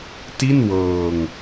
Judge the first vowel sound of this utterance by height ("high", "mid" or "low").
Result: high